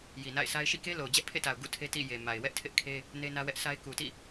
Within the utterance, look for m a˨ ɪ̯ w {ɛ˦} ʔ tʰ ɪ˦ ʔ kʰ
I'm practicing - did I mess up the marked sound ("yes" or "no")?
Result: no